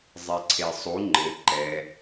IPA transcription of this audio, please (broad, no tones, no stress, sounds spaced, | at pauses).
zˤ e ǀʰ e sˤ u ŋ͡ǃ ɘ ǃ ɛ